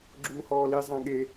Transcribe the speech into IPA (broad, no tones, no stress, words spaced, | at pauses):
ɡ͡ǁuːhɔːli zˤãɠe